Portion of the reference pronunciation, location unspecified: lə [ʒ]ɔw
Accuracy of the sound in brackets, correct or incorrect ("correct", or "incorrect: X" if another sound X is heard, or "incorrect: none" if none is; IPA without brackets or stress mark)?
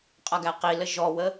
correct